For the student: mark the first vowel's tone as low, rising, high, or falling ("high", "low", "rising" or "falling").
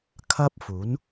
high